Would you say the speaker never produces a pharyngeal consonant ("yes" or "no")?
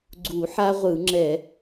no